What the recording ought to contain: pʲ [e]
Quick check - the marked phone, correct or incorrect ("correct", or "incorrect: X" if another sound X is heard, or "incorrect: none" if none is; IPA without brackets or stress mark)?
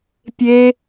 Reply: correct